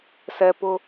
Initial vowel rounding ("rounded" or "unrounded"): unrounded